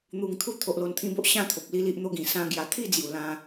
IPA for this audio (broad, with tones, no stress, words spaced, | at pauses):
n̪u˨˩ŋt̪ʰu˦t̪ʰo˨ʔ lo˧nt̪ʰĩ˦bo˦ʔ ɕã˥˧t̪ʰo˨p̚ li˦li˦ʔn̪o˦ɡĩ˨˩ sã˦ ɡja˧ t̪ʰi˥˧d͡zju˨˩ lã˧